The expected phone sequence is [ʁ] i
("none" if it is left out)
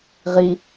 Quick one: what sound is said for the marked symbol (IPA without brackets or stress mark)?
ʁ